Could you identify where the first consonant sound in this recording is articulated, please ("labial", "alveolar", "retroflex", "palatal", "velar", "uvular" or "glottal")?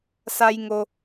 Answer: alveolar